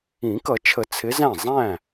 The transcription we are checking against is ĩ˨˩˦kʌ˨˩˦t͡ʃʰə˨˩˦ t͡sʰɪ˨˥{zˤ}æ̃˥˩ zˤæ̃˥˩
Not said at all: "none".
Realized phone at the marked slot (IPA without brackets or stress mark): z